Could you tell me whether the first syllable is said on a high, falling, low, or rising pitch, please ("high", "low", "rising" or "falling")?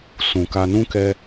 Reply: low